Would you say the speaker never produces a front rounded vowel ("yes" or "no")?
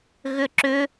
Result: no